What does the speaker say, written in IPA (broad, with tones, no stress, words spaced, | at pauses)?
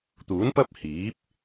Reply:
t̪uː˨˥npɐ˥p̚ hiː˨˥p̚